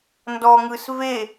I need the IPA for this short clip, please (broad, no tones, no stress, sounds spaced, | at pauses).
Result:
n d ɔ ŋ ɯ s v e